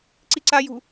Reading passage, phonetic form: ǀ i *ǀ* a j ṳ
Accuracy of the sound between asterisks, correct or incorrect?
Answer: correct